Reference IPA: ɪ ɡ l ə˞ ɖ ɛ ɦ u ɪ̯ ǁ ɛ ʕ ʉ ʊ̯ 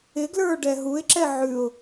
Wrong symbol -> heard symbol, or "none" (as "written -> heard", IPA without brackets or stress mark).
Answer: none